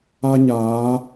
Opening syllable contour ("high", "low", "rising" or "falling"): high